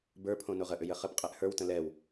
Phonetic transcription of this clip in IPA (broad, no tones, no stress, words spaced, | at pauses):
bə˞pʰõ noʁəʔʏ jəχəpqʼɛʔ hə˞wtə̃ lɛw